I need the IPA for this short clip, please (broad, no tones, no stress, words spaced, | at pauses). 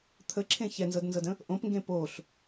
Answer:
t̪ʰəǁʰẽ çɛnzɤdnzɤdə̃ | ʔõpŋɡẽ poɬ